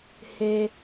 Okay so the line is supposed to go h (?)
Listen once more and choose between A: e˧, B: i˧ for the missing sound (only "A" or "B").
A